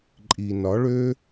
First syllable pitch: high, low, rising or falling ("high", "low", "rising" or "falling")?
low